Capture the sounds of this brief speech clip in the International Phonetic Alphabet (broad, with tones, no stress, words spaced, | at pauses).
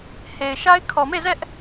he˨ɪ̯ʃa˦ɪ̯ kʰɔ˨me˦˨zɛ˦ʔ